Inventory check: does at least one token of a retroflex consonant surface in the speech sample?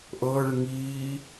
yes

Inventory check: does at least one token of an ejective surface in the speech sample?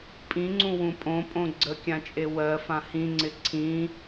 yes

